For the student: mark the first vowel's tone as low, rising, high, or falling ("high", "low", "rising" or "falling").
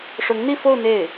rising